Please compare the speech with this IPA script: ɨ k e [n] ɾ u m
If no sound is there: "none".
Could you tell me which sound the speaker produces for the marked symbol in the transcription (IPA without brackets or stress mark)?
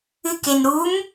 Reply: n